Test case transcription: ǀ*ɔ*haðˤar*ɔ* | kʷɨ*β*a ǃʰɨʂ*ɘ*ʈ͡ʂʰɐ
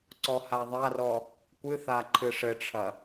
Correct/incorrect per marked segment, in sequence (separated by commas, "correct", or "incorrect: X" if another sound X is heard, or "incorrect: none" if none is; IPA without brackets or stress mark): correct, correct, incorrect: θ, correct